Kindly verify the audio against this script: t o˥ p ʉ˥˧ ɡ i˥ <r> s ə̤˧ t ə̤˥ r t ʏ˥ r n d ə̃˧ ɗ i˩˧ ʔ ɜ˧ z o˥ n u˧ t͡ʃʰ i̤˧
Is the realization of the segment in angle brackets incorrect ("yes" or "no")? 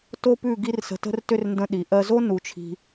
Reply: no